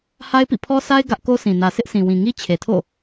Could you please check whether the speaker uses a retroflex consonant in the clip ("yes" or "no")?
no